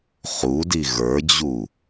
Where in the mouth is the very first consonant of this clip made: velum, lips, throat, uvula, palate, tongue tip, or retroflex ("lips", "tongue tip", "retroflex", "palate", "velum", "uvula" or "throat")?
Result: uvula